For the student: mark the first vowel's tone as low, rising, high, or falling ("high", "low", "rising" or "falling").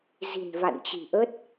low